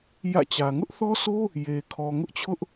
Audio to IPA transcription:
j ä̰˦˨ t͡ɕ ä˨ ŋ ʊ˦ ʔ θ ɔ˦ s o˦ | j e˨ kʰ ɔ˨ ŋ ʊ˦ ʔ t͡ɕʰ ʊ˦ ʔ

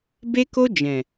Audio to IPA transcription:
b e˦ k o˦ d͡ʒ ɛ̃˨

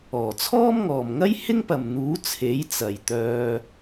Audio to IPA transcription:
ɔː˨˩ t͡sʰ ɔː˥ m ŋ ɔː˨ m ŋ ɐ˥ j h ɪ˥ ŋ p ɐ˨ m n̪ uː˨˥ t͡sʰ e˨˥ j t͡s ɐ˨ j t̪ œː˧

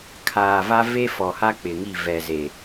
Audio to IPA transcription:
kʰ aː˨ v a˦ v e˦ f ɔ˨ h a˦ k͡p ɪ˨ ŋ i˦˨ v ɛ˨ z e˨

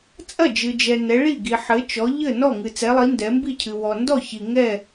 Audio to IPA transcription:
t͡sʼ ɐ˥˨ d͡ʒ ɨ˨ d͡ʒ ɛ˨ n ɛ˨˦ ɭ i˥˨ ɡ i˨ ħ ɘ˨˦ t͡ʃ ɔ˨˦ ʎ ɘ˥˨ n ɔ˥˨ ŋ ɨ˨ t͡s ɛ˨˦ lˠ i˨˦ n d ɛ˨˦ m b i˥˨ cʰ ɨ˨ w ɔ˨ n d ɔ˥˨ ç i˨ ŋ ɛ˥˨

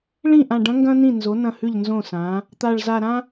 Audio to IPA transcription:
ɭ ĩ˥˩ ʔ ã˧˩ ɖ ɐ̃˧˥ ŋ ɡ ɐ̃˥ n ĩ˥˩ n z o˩˥ n ɐ̃˥˩ h ʉ˥˩ ʎ n z õ˥˩ s ã˩˥ | t̪ a˧˩ ɭ z a˧˩ ɾ ã˥

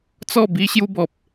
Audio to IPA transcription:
t͡s ɔ˥˧ b i˧ ɕ j u˧ b ɔ˨ p̚

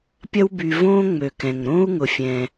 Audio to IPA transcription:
pʲ ɐ˦ w b y˨ v õː˥ ŋ͡m ø˩ k ɛ̃˩ ŋ ɾ õ˥ u̯ ŋ ʊ˨ fʲ ɛ̃˨

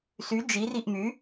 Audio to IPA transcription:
s y d͡ʒ i r i ʔ m y

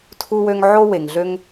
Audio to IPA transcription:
tʰ u˥ w ø˥ ŋ ʕ o˥ w e˨ ŋ ɮ ø˥ ŋ

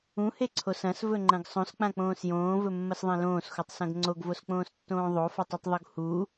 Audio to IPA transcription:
ũ h e ǀʰ o s ɐ̃ s v ɵ ŋ͡ǃ ɐ̃ ɡ sˤ õ s k͡p ã k͡p õː s j õː v ɵ mː ɐ s ðˤ ẽ l õː s x u tˤ s ɐ̃ ɡ ŋ͡ǀ o ɡ v o s k͡p õː s tː õː ðˤ o f ɐ tˤ ɵ tˤ ðˤ u ɡ h u

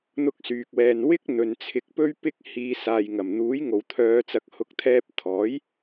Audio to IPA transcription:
n̪ ʊ˥ k̚ s yː˧ k̚ w ɛː˧ n w ɪ˥ k̚ n̪ ɵ˨˧ n t͡sʰ ɪ˧ k̚ p ɵ˥ ɥ p ɪ˧ k̚ h iː˨˧ s aː˨ j ŋ ɐ˨˩ m n̪ uː˨˥ j ŋ o˨ w t̪ʰ œː˨˧ t͡s ɐ˨ k̚ h ʊ˨˥ k̚ t̪ʰ ɛː˧ p̚ t̪ʰ ɔː˨˥ j

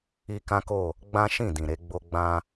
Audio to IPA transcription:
i˦ k ã˦ k o˦˨ | ɡ͡b ã˦ ʃ ĩ˦˨ d ĩ˨ ɾ e˧ ɡ͡b o˧ ɡ͡b ã˧

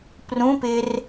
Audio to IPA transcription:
p r ũ p ɪ r

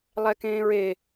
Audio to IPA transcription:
lˠ ɛ k ẽː ɹ e

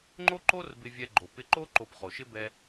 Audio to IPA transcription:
ŋ͡ǃ o˥ ǃ o˥ r b ɪ˧ vʲ ɛ˧ ɡ͡ǃ o˩ p ɪ˧ ǃ o˥ ǃ o˧ p χ o˩ ʃ ɪ˥ b ɛ˧

